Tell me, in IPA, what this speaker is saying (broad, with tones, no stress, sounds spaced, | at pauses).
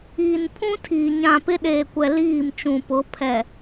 iː˨ n pʰ ũ˦ tʰ iː˨ ɲ ã˨ p ɪ˦ ɗ eː˨ kʷ ɛ˨ l iː˦˨ m t͡ʃ ũ˨ p ʊ˨˦ pʰ ɛ˨